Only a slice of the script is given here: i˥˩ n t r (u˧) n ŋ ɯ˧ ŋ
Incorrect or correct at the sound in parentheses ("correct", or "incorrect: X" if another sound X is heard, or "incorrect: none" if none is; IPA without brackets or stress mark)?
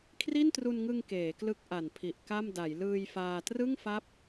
correct